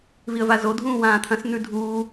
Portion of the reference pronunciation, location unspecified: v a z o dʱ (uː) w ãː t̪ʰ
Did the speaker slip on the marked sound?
yes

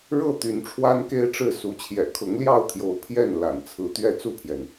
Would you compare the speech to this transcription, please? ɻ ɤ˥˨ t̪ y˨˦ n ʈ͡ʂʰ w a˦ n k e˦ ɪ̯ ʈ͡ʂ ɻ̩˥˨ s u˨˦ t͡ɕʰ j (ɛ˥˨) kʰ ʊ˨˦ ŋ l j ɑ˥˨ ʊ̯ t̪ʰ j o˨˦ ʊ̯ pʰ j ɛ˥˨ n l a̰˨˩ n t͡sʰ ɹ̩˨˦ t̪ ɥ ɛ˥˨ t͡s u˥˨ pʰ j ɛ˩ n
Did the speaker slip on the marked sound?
yes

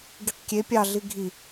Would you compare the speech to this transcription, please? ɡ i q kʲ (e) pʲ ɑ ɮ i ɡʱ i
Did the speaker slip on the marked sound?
no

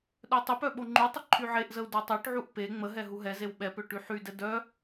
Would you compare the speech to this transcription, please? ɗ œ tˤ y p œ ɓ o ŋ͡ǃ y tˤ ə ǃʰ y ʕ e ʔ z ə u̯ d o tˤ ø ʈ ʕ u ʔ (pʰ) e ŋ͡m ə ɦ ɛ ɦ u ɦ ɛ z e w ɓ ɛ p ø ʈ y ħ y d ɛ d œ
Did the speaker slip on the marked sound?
yes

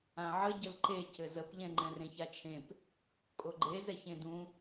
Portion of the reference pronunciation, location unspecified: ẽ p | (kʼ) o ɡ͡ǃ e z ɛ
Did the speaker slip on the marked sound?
no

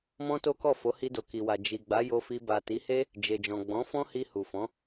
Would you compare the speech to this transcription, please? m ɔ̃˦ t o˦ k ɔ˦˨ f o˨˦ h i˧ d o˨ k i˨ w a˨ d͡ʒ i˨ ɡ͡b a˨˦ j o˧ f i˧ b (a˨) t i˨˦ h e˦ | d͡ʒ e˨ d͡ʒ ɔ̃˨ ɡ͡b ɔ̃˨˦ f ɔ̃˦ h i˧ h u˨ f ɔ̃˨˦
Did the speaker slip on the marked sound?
no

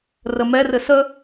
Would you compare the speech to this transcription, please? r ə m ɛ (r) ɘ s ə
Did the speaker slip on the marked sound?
no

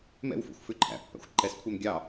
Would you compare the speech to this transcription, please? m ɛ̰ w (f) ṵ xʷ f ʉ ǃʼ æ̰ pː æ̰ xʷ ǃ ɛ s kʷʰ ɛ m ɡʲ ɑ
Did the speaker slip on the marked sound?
no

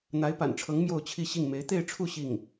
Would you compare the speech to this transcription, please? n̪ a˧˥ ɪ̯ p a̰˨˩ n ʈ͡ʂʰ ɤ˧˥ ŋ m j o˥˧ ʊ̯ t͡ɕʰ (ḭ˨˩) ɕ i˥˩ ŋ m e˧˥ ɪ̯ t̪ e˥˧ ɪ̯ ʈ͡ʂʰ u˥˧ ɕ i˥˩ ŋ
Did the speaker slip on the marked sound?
yes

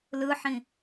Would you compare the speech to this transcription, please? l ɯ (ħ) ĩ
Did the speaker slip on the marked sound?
no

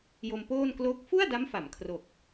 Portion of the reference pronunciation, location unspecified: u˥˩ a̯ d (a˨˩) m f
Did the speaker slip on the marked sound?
yes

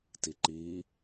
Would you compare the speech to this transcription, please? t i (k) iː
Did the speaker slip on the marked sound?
yes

